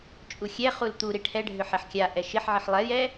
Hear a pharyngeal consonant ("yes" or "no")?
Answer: yes